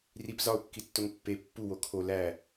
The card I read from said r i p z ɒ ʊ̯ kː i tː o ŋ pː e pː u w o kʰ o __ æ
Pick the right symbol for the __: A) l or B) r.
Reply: A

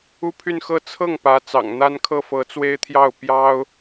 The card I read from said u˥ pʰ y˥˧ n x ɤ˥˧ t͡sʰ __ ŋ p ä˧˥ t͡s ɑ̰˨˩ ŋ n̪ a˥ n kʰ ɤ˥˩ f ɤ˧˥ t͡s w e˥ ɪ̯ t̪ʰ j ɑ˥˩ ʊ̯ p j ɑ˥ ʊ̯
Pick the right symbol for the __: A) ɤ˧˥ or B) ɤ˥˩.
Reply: B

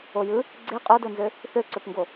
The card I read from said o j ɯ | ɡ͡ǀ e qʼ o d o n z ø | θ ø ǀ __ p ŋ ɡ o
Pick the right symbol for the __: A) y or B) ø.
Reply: B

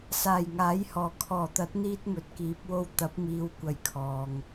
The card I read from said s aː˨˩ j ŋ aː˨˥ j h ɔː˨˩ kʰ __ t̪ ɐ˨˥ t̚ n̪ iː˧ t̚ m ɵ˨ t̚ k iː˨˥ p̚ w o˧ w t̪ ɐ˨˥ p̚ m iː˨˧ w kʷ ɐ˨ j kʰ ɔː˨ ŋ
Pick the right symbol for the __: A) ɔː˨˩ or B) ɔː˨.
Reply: A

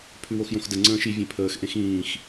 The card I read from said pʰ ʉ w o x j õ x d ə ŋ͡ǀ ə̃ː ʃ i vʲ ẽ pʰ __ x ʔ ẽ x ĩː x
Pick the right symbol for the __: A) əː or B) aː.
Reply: A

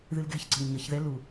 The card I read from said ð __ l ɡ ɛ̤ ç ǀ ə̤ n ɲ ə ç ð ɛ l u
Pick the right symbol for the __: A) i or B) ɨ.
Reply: B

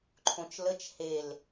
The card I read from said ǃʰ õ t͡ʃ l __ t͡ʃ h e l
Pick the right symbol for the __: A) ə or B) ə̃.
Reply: A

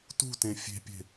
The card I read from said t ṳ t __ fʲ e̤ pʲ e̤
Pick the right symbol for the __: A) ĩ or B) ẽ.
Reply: B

